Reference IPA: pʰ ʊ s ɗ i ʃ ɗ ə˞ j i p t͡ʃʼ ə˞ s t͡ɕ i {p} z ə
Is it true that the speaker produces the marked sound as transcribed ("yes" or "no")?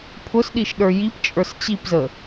yes